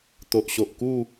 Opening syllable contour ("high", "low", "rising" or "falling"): low